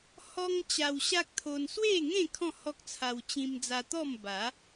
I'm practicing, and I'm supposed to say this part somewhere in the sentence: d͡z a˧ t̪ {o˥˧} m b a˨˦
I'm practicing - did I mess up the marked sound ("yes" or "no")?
yes